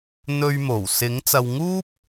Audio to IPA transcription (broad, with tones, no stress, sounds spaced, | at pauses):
n̪ ɵ˧ ɥ m o˨˩ w s ɪ˨˥ ŋ t͡s ɐ˨ w ŋ uː˥ p̚